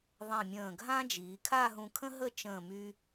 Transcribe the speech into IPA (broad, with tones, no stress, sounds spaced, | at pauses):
ðˤ ẽ˧˩ mʲ ə̃ː˧˩ ɡʱ ã˥ d͡ʒ iː˩˧ kʰ a˥˧ ɦ ũ˧ kʰ ə̃˥ ɦ ə˥˧ t͡ʃ ə̃ː˧˩ m y˧